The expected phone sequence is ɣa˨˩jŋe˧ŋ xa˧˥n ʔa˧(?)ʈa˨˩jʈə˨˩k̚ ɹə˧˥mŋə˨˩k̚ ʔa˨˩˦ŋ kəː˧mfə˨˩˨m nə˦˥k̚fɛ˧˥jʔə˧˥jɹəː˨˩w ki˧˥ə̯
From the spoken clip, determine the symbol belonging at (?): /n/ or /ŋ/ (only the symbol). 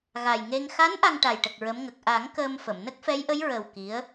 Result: ŋ